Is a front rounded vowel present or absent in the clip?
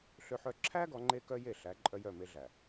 present